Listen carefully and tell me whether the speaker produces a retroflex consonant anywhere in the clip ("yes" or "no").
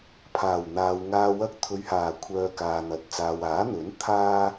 no